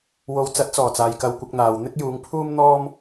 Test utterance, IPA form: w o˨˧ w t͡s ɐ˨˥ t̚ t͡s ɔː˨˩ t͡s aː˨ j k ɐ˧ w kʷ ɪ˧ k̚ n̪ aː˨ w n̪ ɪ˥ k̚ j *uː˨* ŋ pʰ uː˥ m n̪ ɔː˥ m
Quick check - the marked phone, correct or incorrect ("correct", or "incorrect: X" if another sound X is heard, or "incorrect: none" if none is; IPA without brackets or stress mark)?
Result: incorrect: uː˨˧